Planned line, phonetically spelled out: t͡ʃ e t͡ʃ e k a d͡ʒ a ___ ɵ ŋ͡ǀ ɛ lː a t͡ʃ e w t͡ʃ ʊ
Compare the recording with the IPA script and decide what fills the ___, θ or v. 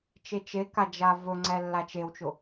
v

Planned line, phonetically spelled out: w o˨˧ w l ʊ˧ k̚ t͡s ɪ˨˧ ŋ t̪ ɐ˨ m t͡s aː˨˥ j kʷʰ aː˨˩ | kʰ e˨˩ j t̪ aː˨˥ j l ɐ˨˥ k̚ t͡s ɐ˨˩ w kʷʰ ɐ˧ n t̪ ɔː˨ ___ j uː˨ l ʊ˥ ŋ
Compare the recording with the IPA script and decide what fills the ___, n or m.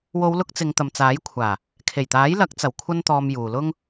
m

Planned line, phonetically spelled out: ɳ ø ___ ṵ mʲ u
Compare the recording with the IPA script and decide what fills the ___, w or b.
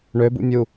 b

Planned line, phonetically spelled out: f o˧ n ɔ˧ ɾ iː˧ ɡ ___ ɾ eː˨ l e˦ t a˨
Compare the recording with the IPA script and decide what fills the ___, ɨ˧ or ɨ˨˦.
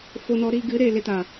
ɨ˨˦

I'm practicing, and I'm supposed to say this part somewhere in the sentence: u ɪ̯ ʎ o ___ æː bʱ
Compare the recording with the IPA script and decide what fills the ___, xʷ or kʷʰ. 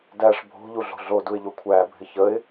kʷʰ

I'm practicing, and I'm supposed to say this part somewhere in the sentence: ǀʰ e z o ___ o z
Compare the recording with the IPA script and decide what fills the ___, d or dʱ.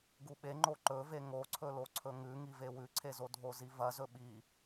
dʱ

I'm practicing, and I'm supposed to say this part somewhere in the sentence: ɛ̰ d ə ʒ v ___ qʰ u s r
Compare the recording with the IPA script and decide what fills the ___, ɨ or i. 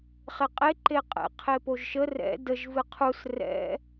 ɨ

